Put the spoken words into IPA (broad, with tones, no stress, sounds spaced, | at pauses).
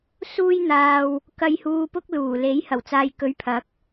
s uː˧ j n̪ aː˨ w | k ɐ˨ j h uː˨ p ʊ˧ k̚ l uː˨˩ l e˨˥ j h ɐ˨˩ w t͡s aː˨ j k ɵ˨˥ ɥ pʰ ɐ˨˥ k̚